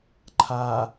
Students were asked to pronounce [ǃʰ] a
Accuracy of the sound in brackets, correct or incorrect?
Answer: correct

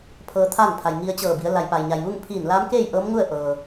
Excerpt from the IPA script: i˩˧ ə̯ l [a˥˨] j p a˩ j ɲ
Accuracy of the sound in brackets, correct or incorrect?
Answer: incorrect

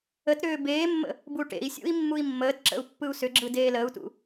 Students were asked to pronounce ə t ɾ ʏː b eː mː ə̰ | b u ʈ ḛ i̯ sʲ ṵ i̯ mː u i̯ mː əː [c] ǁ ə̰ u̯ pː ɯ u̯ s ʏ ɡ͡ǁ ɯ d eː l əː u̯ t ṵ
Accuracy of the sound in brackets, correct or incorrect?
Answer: incorrect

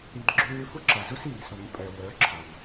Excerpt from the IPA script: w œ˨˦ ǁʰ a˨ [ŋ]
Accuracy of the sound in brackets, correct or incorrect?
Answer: correct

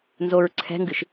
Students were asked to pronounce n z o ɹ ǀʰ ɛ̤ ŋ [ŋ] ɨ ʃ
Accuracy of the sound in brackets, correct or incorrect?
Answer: incorrect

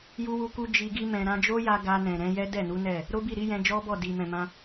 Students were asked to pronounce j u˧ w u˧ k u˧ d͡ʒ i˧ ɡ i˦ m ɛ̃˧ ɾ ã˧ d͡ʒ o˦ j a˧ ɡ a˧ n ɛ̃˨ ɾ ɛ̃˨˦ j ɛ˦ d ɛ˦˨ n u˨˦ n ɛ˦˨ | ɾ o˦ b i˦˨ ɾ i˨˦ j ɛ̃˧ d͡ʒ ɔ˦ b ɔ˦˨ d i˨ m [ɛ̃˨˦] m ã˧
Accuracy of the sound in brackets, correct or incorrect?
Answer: incorrect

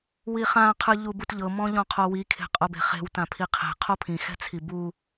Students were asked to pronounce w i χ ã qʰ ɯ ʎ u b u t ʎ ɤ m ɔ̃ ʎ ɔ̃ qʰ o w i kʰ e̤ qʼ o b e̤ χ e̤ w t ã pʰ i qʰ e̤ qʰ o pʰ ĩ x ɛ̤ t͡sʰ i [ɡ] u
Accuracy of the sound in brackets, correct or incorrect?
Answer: incorrect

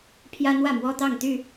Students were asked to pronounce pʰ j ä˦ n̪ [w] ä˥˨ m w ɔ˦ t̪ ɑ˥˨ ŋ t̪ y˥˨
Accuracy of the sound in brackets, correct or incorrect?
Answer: correct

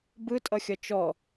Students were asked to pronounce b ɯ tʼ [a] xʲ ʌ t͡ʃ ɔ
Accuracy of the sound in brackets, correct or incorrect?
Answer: incorrect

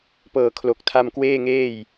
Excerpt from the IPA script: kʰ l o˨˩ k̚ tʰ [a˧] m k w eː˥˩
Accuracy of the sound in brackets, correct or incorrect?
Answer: correct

